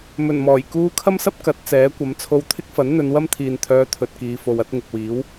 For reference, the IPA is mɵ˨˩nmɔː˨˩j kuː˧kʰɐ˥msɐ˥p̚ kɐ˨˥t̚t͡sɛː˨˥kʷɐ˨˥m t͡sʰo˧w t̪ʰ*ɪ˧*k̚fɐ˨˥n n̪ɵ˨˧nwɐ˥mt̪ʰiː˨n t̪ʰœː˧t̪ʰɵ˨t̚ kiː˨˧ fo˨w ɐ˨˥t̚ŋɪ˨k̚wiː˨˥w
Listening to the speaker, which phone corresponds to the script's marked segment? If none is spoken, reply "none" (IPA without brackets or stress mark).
ɪ˥